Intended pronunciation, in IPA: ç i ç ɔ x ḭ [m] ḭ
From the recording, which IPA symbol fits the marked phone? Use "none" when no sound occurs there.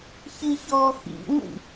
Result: ŋʷ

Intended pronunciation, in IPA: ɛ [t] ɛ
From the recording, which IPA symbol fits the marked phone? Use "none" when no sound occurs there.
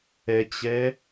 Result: t͡ɕ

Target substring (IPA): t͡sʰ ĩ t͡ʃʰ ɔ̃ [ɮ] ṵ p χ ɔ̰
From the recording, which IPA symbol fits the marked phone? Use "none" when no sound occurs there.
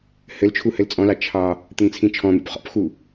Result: n̪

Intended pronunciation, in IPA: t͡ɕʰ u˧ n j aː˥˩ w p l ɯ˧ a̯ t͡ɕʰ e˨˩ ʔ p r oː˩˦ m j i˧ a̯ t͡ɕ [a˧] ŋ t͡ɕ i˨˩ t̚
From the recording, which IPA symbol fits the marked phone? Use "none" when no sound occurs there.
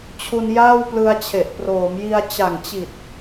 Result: a˨˩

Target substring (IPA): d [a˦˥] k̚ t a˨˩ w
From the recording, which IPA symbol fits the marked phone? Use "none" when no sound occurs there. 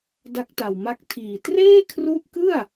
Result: a˦˥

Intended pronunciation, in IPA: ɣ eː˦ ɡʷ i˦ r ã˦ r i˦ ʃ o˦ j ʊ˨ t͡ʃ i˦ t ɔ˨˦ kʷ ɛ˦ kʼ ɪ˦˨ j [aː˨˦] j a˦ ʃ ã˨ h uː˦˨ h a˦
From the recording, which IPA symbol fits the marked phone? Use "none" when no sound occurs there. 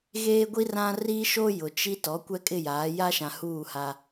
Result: aː˨˦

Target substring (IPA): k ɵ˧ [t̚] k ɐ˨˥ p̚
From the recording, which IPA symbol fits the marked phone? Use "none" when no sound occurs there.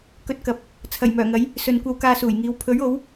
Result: t̚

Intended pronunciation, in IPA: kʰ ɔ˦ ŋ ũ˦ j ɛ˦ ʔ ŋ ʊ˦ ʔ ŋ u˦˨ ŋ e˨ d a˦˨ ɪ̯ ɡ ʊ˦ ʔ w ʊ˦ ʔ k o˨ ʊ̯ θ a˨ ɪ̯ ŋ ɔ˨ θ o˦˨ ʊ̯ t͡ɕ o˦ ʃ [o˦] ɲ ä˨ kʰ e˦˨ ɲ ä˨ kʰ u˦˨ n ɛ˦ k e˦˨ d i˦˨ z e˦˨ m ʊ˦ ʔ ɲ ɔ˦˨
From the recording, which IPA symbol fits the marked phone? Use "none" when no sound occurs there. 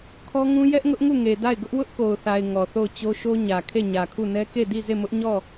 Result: o˦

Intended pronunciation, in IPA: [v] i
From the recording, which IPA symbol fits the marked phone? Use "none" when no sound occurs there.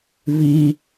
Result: v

